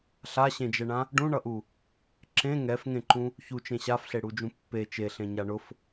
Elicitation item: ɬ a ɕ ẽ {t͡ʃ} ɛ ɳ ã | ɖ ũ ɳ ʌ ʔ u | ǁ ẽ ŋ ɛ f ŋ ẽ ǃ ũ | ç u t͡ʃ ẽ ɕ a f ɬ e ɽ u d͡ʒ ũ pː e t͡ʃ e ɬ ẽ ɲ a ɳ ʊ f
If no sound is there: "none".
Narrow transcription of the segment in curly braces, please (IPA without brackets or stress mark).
d͡ʒ